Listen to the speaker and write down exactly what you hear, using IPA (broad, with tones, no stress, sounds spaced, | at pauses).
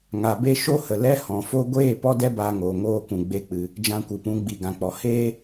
ŋ a˨ b e˧ ʃ o˦ h ə˨ l ɛ˧ h ɔ̃˨ f o˧ ɡʷ eː˦˨ p ɔ˦ d ɛ˦ b aː˧ ŋ oː˨ ŋ oː˦˨ k ũ˨ ɡ͡b e˧ k͡p ɨ˨ | d͡ʒ ã˧ kʷ ɨ˨ p ũ˨˦ ɡ͡b i˨ ɡ ã˨ k͡p ɔ˨ h eː˦